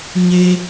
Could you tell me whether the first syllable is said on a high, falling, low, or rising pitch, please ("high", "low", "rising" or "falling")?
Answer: high